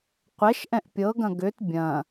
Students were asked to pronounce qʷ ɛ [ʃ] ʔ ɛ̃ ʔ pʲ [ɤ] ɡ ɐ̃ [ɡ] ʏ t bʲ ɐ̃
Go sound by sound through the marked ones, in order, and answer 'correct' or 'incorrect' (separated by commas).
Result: correct, correct, correct